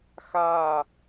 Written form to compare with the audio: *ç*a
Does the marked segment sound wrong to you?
yes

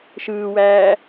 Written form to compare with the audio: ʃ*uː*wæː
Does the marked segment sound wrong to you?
yes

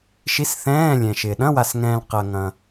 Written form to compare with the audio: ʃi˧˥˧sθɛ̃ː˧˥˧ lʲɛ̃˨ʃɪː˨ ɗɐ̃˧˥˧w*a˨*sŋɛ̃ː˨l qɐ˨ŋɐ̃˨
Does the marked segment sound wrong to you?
no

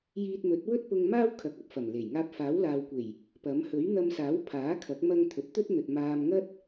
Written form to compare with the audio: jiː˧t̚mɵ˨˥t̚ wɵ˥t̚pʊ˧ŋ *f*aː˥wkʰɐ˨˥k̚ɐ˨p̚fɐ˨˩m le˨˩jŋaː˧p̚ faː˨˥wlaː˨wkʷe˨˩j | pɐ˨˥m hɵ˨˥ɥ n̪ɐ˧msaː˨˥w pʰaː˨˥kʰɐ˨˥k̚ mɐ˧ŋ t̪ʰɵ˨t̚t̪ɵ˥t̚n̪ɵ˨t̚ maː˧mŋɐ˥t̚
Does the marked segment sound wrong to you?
yes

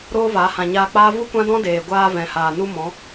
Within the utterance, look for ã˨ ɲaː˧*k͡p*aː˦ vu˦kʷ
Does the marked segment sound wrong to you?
no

